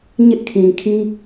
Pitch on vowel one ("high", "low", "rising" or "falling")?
high